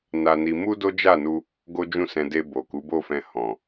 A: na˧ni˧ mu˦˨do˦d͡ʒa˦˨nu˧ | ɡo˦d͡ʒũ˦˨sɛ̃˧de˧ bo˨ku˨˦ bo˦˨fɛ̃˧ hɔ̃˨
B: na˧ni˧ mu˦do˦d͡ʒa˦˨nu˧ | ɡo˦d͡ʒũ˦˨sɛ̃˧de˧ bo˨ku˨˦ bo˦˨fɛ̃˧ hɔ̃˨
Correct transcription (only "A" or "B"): B